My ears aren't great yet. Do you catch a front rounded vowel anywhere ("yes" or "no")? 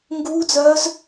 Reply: yes